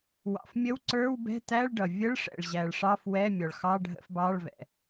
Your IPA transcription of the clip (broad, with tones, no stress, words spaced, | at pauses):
wɑ̰˩fmʲə˧˥˧wǀə˞˧˥˧w bɛ̤˧˥˧tæ˧˥˧ɭɖʌ˩ vʲə˧˥˧ɭ ʂɛ̰˩ɭʑæ˩ɭʂɑ˧˥˧f wɛ˧˥˧ mʲɔ˩ɭxɑ˧˥˧ɖʱə̰˧˥˧fbɑ˧˥˧ɭ vɛ̰˩